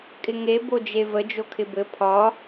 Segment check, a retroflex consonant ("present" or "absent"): absent